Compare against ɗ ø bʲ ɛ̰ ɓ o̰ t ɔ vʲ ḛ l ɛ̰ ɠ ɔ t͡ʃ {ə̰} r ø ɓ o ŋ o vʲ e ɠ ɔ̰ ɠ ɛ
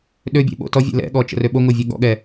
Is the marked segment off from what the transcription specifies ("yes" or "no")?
no